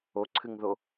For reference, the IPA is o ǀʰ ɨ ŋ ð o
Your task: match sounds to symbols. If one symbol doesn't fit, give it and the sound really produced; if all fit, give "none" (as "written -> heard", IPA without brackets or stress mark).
none